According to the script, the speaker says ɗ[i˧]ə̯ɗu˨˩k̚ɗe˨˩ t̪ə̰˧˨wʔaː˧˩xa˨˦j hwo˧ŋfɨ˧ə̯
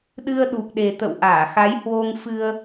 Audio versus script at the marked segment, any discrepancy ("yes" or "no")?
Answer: yes